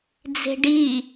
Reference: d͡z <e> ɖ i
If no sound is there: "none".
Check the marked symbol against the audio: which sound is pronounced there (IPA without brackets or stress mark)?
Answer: e̤